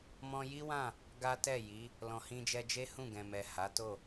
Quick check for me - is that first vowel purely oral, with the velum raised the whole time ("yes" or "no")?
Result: no